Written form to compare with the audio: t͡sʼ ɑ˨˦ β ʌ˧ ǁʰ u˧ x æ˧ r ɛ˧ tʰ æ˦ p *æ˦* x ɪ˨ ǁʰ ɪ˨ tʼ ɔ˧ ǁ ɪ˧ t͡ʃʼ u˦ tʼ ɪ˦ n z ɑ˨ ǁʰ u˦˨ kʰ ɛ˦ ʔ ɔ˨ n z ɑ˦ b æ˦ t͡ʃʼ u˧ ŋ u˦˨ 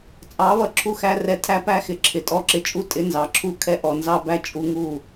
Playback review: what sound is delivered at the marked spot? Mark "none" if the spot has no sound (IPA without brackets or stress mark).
æ˦